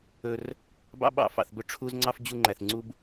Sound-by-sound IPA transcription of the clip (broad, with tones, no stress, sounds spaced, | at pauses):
ɵ˥ r | b ɑ̰˥ ɓ ɑ̰˥ f ɑ̰˧ θ b ɵ˥ ʈ͡ʂʰ u˥ z ŋ͡ǀ ɑ˥ f d͡ʑ u˥ ŋ͡ǃ æ˧ θ ŋ͡ǀ u˥ b